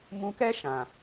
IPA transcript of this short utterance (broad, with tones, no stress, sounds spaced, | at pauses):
m ũ˧ k ɛ˦ ʃ ã˨